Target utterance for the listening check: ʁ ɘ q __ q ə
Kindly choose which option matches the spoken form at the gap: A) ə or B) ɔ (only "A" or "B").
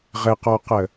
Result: B